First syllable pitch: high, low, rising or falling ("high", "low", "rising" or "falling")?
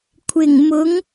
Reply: low